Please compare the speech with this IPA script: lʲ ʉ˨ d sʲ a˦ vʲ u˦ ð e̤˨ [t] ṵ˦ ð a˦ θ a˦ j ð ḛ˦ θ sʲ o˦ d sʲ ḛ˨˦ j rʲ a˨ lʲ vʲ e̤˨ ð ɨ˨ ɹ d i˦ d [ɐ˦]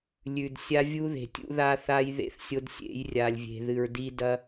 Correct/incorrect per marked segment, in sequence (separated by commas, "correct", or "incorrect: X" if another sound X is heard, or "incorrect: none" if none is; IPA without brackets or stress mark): incorrect: tʲ, correct